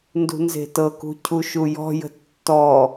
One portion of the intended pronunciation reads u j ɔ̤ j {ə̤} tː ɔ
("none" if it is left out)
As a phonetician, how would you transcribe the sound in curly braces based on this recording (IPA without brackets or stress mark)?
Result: ə̤